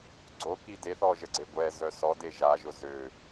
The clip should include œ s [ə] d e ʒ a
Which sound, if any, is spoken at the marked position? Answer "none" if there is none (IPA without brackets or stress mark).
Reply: ɔ